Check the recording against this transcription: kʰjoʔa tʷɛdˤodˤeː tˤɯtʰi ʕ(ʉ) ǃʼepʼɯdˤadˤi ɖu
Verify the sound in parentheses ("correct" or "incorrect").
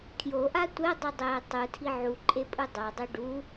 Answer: incorrect